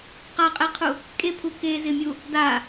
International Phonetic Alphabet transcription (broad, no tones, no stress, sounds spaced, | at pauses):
q a qʼ e qʰ u | kʼ e pʰ u k e z ɪ mʲ u | d a